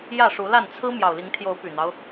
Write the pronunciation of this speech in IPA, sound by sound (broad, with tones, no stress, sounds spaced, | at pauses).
j ä˥˨ ʂ u˨˦ l a˥˨ n t͡sʰ ɹ̩˦ m j ɑ˨˩ ʊ̯ l i˨˦ ŋ t̪ʰ j o˨˦ ʊ̯ p y˨˩ n̪ ɑ˦ ʊ̯